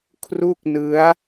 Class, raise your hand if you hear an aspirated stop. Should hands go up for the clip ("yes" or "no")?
yes